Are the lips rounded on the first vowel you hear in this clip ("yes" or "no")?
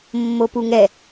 yes